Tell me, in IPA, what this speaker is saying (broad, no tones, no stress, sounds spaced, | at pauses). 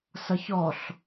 s ʌ ç ɔ ɬ